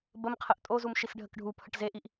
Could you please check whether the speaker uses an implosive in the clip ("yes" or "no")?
no